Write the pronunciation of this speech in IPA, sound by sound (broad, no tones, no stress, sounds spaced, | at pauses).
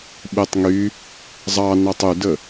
ɓ e tˤ ŋ y | zˤ ɑ n ɑ tˤ y d ə